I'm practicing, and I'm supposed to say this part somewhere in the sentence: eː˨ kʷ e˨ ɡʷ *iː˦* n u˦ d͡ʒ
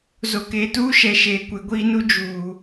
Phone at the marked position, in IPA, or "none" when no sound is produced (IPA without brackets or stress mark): iː˦